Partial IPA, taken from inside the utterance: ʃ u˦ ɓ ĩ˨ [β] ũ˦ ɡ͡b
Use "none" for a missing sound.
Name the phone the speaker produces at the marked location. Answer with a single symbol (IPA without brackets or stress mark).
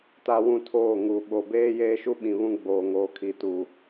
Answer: β